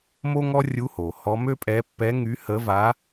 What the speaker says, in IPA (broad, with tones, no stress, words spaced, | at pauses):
mo˥ŋɔ˥rʲu˧˥ho˩ hɔ˧˥ mø˥pʼɛ˧˥ pːɛ˧˥ ŋy˧˥hə˧˥va˧˥